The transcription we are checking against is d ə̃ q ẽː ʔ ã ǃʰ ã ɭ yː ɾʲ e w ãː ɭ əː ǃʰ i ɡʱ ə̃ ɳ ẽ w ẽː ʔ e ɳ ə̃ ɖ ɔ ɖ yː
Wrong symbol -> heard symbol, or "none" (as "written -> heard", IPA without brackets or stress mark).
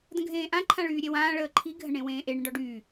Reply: q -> ɡʱ